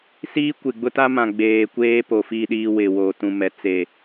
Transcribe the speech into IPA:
s iː˦ kʷ ɪ˨ ɡ͡b ʊ˦ t a˦ m ã˨ ɡ͡b eː˨ kʷ eː˦ p o˨ f i˦˨ ɗ iː˦ w ɪ˨ w oː˨ t ũ˨ m ɛ˨ t͡s e˨

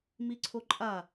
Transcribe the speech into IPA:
m i ǀʰ o ǃʼ a

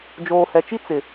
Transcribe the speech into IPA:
d͡ʒ oː˨ h ɛ˨ t͡ʃ i˦ t͡s ɪ˨

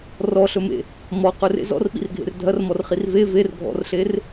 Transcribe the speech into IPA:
r ɔ ɬ ɵ m ḛ | m ɔ q ɵ r ḛ z ɔ̰ r ɓ ḭ r ɡʱ ḛ r dʱ ɐ r m ɔ r χ i r v e v e r ɡʱ ɔ̰ r ɬ e r

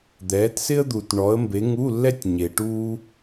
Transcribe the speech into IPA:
d̪ ɛː˨˦ t s ɪ˥ ə̯ d̪ u˨ t ɳ ɔ˨˦ ə̯ m b e˨˦ ŋ u˧˥˧ lː ɛ˥ tʲ ɲ e˨ ʈ uː˥

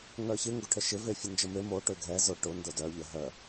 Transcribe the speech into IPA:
ŋ œ ç ɪ ŋ ɡ ʊ ʈʰ ə ʃ ɪ v e fʲ ə n d͡ʒ ə m e m o ʈ ø ɡʱ ɛ z ʊ ʈ ʊ n d ʊ d œ ʎ ə ɦ œ

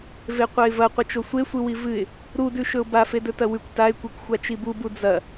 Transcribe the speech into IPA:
v e qʷ ɐ ɪ̯ v ɐ qʷ ɐ t͡ʃ o sʷ e sʷ ɨ w i v ɨ ɪ̯ | ɾ u d ʉ ʃ ɵ ʊ̯ b a f e d ɵ t ɐ w ʉ kʷ t a ɪ̯ kʷ e kʷ xʷ a t͡ʃ i b u b u d͡z ɐ

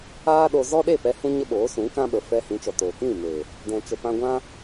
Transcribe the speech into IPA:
aː˦ ɗ o˧ z ɔ˦ ɗ e˦˨ p ɛ˧ h ũ˦ ɲ ə˦ ɓ oː˨˦ s ũ˨˦ k ã˦ ɓ ə˨ f ɛ˧ h ĩ˨˦ t͡ʃ ɔ˨ t oː˨ k ĩ˦˨ m e˨ | d ɛ̃˨ t͡ʃ ə˨ p ã˧ ɡʷ ã˦

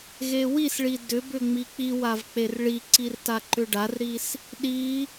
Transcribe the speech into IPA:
ɣ e w i s ɭ i d ʏ b ʏ ŋ͡m i k͡p i w a v k͡p e r ɭ i ǀ i r t a ǃ ʏ ɖ a r ɾ i s | ɗ i

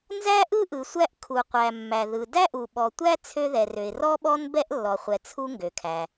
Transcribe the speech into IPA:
n z æ˥ ʔ ɯ˥ ʔ ɯ˩ sʷ æ˥ ʔ kʰ u˩ qʷ æ˩ mː æ˩ ð ɯ˩ d æ˥ ʔ u˩ ɓ ɔ˩ tʷ æ˥ t͡sʰ ø˥ ð ɛ˩ r ø˩ ɪ̯ r ɔ˥ ɓ ɔ˥ n b ɛ˥ ʔ lː ɔ˩ χʷ ɛ˩ t͡sʰ u˥ ŋ ɡ ø˩ kʰ æ˩

